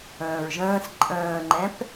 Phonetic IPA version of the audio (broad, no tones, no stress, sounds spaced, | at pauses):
ə̃ː ɹ ʒ ə̃ː s ǃʼ ə̃ː ŋ͡ǃ ɛ̃ p